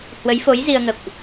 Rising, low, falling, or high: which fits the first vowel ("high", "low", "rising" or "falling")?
rising